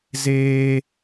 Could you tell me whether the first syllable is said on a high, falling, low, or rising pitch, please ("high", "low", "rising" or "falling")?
high